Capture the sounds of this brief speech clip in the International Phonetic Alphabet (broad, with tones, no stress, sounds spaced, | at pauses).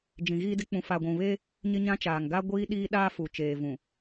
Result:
d͡ʒ ĩ˨ ɣ iː˦ d ɪ˦ k͡p ũ˨ f aː˨ ɡʷ ũ˨ β eː˦ | ɲ ɪ˦ ɲ ã˦ t͡ʃ aː˨ ŋ ɡ a˦ ɡʷ iː˦ ɗ iː˦ ɗ aː˦ f u˨ t͡ʃ eː˨ v ũ˨